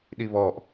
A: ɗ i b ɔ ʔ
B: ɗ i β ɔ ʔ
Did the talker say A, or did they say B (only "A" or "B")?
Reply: B